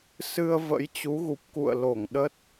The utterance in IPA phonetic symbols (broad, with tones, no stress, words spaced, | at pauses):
sɨ˧ə̯ və̰˧˥jt͡ɕu˨˦ɣu˨˩p̚ kṵ˧˨ə̯ lo˧˩ŋɗə˦˥t̚